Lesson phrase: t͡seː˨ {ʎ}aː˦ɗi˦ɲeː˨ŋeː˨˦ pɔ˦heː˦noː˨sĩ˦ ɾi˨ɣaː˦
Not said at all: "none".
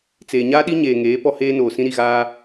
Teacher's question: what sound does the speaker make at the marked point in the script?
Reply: ɲ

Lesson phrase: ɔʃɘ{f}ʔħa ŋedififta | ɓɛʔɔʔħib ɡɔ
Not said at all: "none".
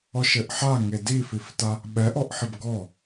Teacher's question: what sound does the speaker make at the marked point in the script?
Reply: none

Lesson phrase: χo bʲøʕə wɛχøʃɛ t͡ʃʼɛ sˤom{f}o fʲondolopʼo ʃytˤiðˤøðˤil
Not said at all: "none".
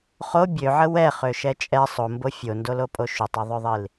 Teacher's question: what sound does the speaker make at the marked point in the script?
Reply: b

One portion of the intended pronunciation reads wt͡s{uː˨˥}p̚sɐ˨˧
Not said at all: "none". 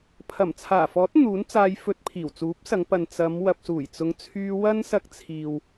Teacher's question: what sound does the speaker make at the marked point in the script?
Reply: uː˨˥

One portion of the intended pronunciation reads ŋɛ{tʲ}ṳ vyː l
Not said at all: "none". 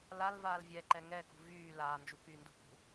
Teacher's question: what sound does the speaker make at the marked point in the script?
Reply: k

